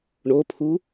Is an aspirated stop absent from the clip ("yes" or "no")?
no